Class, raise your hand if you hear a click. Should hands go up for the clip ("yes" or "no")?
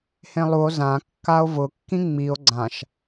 yes